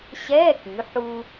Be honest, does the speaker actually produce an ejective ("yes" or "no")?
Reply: no